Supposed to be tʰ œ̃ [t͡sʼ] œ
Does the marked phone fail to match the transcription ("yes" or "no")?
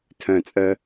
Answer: no